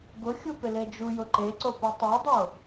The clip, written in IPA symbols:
ɡ ʊ xʲ u p ɪ l e d͡ʒ u j ʊ ǃ e ǀ o p u tˤ a dˤ o

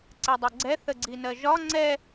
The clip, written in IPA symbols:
ǀ ɛ dˤ ɛ ɡ͡ǀ ɛ θ ə ɡ͡ǀ i n ɜ ʒ ɒ ŋ͡ǀ ɛ

